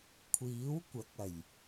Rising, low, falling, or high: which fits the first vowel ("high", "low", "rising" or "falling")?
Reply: rising